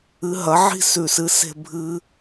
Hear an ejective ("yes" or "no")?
no